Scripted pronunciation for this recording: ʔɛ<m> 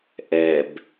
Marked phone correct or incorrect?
incorrect